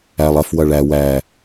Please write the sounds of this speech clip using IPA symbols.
æ lˠ ɐ f w ɐ ɭ æ w æ

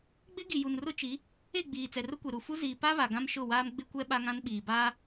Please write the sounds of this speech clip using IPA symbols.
ɡ͡b ɪ˦ ɡ i˨ j u˨ n r ʊ˦ t͡ʃ i˨˦ | e˦˨ ɡ͡b iː˨ t͡s ɛ˨ r ʊ˦ kʷ e˨ ɾ u˨ f u˦ z iː˨ p a˦ β a˨ ɡ ã˦ m ʃ ʊ˦˨ w aː˦ m ɡ͡b ɪ˦ kʷ ɛ˦ ɓ a˦ ŋ ã˦ n ɓ iː˨ b aː˦

